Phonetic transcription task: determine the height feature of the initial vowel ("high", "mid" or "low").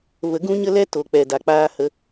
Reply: mid